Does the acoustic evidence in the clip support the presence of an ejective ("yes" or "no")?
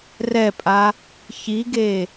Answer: yes